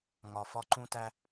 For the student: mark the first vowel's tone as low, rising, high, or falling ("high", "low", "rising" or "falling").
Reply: low